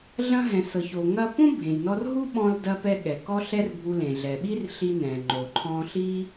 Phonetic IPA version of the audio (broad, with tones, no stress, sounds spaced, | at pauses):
ɮ ɐ̃˧ ɦ ɛ̃˩ s ɤ˩ ç o˩ ŋ ɐ˧ p õ˥ bʱ ẽ˩ j n ɔ˧ r ɦ u˥ ɓ ɔ̃˧ l d ɐ˧ p ɛ˧ ɠ ɛ˩ k ɔ˥ ɬ ɛ˥ r bʱ u˧ l ẽ˩ ɮ ɛ˩ ɓ i˥ r ɬ i˧ n ɛ̃˩ ŋ͡ǃ o˩ ǃʰ ɔ̃˧ ɬ i˥